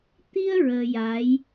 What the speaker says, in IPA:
t̪i˧ə̯ ɹəː˧ja˧˥j

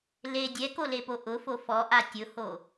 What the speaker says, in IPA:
le dʲɛkolepo ʔʊfo fɔʔa tʲʊho

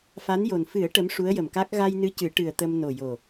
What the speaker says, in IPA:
fa˧˥njo˨˩n fɨ˨˩˦ə̯ ʈə˧˥mʂu˧˥ə̯jə˨˩mka˦˥k̚ ɣa˧jnɨ˧˥ cɨ˨˩˦ʈɨ˨˩ə̯ t̪ə˧m no˨˩jo˨˩

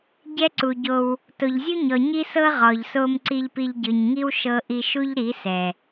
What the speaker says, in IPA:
ɟɛ˦ǀu˨ɟo˧w | to˨ʎzʲu˦ɲɔ˨ ɲi˦sɤ˦ ʁɔ˨ʎso˧m ǀi˧ʎpi˧ʎɟɯ˨ɲ ŋi˦wʃɤ˧ ʔi˧ʃu˦ʎɾi˨˦sɛ˨

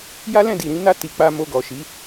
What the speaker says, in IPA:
ja˦ lɛ̃˦˨di˨ ɾĩ˧na˧ ti˨k͡pa˧ mo˧ɡɔ˨ʃi˨˦

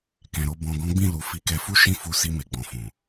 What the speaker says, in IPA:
kɛ̃˨ɾo˧ bɔ̃˨ ɡɔ̃˨˦ɡ͡bĩ˦˨lu˨ fi˨˦kɛ˧fu˦ ʃĩ˦˨fu˧ si˧me˨ɡ͡bɔ̃˨fũ˨

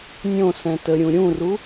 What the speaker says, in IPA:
nʲõ sɛ̃təɾʲũ ɾʲũru

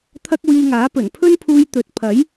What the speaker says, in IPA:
t̪ʰɐ˥k̚wiː˧ŋaː˨˥pɵ˨˩n pʰɵ˥npʰuː˧j t̪ɵ˨˥t̚pʰɐ˨˥j

